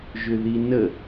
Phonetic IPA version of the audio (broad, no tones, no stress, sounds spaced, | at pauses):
ʒ ʏ ð i n ə